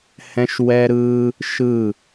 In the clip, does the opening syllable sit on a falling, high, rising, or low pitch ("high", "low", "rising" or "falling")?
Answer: high